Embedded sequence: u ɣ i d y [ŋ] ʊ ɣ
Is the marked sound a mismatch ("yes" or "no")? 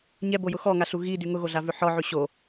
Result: no